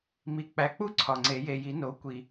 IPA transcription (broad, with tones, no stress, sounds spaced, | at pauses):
m i˨˩ k͡p æ˨˩ k͡p u˥˨ ǀʰ ɒ˨˩ ŋ͡ǀ e˨˩˦ j e˨˩ j i˨˩˦ n o˩˥ kʷ i˨˩